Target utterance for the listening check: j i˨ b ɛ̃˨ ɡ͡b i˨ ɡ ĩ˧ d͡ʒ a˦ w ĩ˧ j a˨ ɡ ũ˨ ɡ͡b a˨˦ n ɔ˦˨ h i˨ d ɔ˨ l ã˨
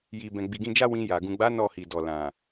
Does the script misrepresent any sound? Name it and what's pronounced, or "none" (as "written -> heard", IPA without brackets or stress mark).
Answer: none